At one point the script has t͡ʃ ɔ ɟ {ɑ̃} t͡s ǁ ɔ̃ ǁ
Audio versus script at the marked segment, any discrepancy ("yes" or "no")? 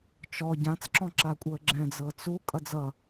yes